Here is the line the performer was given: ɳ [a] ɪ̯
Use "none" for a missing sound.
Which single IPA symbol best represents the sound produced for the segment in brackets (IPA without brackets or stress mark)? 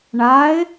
a